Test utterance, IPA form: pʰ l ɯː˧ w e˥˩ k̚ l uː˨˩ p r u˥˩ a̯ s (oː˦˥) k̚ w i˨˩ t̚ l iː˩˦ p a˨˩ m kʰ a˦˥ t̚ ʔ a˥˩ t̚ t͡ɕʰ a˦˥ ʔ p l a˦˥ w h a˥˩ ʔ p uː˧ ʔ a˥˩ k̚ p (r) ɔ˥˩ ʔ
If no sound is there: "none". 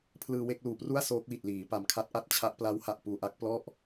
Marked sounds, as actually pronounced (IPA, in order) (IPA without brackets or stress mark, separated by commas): oː˦˥, l